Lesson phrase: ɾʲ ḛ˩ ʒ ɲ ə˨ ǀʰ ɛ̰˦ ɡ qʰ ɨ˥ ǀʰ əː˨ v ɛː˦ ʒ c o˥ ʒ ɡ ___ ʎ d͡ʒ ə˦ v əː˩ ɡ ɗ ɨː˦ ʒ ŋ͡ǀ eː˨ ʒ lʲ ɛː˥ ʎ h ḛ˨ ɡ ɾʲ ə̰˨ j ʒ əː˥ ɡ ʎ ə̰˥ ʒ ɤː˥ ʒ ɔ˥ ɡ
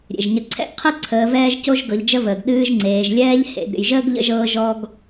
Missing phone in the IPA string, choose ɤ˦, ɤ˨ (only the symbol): ɤ˨